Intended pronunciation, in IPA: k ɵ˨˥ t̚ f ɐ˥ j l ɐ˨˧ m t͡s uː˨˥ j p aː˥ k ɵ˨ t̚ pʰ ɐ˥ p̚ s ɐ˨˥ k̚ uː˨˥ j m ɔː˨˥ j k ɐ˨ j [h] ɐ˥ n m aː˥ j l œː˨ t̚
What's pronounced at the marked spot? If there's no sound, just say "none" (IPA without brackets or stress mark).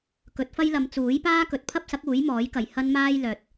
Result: h